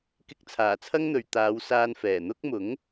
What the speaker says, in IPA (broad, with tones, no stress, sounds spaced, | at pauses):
k ɪ˧ k̚ t͡sʰ aː˨˩ t͡sʰ ɐ˥ ŋ n̪ ɵ˨ ɥ t̪ aː˨˧ w s aː˧ n f ɛː˨˩ n̪ ʊ˥ k̚ m ʊ˨˥ ŋ